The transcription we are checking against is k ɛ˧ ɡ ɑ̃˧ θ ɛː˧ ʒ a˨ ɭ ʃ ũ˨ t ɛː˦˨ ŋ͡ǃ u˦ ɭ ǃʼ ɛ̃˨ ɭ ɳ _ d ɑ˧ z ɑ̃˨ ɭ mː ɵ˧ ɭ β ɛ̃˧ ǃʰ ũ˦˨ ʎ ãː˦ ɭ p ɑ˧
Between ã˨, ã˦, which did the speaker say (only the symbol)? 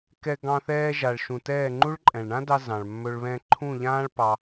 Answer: ã˦